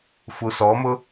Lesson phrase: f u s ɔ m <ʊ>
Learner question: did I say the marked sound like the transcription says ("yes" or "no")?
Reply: yes